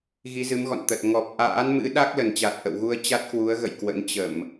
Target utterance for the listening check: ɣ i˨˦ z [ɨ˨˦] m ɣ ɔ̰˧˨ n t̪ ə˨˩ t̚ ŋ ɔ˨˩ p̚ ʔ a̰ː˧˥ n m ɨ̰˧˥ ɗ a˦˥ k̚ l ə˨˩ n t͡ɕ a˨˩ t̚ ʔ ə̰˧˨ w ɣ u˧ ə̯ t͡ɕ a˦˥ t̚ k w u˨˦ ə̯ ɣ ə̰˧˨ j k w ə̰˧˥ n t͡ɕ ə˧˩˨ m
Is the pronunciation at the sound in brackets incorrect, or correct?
correct